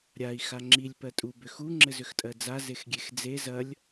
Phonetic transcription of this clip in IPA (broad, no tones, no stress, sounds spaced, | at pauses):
ɾʲ a i̯ x a ŋ͡ǁ i lʲ p ɜ tʼ u b ʏ x u ŋ͡ǁ ɘ z ʏ x tʼ ɜ d͡z a z e x ɡʲ e x d͡z e z ɐ lʲ